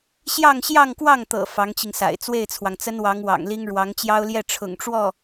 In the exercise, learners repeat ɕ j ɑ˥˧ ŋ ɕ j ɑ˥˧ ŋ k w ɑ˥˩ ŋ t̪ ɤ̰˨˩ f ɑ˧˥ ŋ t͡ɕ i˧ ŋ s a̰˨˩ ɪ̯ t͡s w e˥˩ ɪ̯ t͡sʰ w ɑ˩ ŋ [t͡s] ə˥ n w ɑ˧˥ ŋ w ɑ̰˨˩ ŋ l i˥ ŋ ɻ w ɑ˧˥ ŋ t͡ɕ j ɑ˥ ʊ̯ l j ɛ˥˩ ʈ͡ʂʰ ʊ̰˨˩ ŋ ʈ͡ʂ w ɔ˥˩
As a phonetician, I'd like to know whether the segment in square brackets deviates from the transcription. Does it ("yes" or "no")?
no